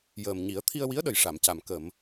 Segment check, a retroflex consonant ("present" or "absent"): present